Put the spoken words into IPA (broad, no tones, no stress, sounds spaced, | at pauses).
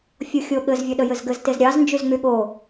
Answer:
fʲ o xʲ o ɠ ɘ z vʲ ə ɗ ə j ɘ z ɡ ɘ z t e z ɾʲ ɑ z n d͡ʒ y z ŋ͡m y ɠ o